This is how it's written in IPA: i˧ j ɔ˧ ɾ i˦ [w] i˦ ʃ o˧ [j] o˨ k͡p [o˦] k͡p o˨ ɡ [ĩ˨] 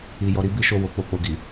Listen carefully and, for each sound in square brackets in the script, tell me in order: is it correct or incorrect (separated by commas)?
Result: incorrect, incorrect, incorrect, incorrect